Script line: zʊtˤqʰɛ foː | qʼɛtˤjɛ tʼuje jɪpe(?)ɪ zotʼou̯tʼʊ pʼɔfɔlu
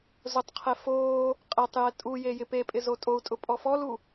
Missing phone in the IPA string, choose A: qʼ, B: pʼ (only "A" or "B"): B